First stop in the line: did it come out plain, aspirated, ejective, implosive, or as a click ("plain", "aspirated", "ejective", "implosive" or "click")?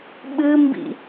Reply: implosive